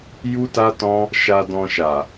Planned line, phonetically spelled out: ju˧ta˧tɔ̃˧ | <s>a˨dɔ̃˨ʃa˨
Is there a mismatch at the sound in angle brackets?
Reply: yes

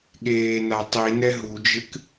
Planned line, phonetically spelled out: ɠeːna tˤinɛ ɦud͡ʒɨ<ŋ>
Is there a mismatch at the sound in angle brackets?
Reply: yes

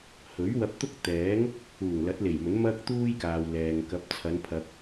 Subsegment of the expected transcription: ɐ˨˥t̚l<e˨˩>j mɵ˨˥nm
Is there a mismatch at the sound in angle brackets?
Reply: no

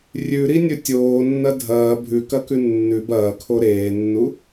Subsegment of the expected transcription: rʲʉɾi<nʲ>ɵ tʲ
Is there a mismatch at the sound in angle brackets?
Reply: no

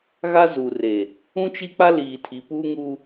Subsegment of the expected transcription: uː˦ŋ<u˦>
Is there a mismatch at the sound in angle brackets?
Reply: no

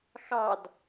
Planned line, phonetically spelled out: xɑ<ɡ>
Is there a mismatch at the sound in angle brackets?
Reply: yes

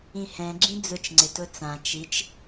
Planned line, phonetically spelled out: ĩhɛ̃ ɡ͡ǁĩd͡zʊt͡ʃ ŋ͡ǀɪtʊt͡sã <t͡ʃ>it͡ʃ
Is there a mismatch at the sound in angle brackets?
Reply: no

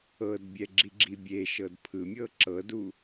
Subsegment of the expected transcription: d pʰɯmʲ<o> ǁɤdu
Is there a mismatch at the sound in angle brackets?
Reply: yes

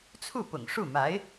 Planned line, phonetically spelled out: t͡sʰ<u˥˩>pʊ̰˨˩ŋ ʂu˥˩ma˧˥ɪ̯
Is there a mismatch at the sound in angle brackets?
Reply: no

